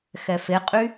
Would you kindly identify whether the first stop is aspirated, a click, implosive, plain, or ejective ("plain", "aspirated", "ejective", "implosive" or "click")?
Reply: ejective